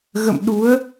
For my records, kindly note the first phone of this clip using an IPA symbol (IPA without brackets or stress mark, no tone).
ɣ